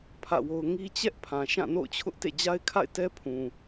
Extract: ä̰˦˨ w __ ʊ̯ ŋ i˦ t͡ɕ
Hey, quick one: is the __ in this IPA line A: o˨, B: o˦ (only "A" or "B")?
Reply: B